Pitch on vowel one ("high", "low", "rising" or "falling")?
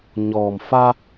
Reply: low